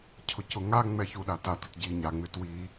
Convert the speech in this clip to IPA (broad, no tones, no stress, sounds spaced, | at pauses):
cʰ ʊ c ʊ ŋ a ŋ͡m ɛ ç u ɗ a t a t ʊ t ɟ i ɲ a ŋ͡m ɪ t w i